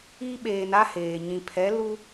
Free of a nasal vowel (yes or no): no